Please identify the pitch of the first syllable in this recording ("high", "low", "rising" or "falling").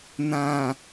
low